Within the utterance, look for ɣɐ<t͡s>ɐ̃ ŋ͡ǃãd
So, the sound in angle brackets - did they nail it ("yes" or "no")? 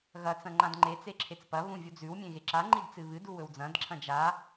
yes